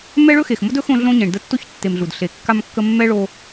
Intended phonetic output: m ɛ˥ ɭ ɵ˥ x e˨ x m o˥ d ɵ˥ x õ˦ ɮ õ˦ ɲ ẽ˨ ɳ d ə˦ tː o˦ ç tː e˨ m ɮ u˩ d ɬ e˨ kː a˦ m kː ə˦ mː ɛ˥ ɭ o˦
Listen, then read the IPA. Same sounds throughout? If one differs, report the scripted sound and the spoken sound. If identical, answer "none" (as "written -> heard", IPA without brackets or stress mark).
none